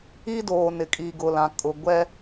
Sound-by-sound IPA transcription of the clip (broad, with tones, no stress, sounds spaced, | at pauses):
i˦ d oː˨ n ɪ˨ kʼ i˨ ɡ ʊ˨ l ã˨ kʼ ʊ˨ ɡʷ ɛ˦